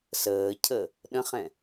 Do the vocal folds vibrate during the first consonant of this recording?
no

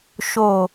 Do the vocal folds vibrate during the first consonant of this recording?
no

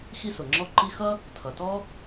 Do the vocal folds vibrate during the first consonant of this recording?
no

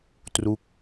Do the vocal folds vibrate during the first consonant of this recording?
no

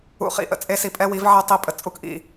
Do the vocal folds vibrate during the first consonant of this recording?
no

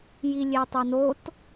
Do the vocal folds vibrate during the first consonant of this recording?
yes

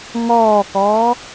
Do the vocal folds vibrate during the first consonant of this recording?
yes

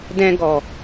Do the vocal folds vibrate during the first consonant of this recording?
yes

